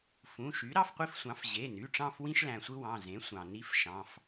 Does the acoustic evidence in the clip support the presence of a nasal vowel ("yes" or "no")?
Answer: yes